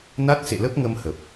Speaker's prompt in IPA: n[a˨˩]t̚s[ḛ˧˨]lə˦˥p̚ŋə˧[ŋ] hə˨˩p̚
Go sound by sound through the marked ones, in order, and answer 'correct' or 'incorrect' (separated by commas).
incorrect, correct, incorrect